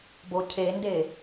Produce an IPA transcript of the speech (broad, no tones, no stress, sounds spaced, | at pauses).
b o cʰ e n d e